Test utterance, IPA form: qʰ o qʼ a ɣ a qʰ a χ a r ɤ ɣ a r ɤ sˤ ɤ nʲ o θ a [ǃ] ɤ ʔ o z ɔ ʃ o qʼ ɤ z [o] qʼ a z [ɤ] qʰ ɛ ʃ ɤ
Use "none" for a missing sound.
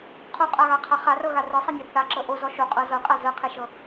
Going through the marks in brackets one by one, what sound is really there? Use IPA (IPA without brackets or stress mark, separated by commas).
ǁ, ɤ, ɤ